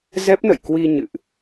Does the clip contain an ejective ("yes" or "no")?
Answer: no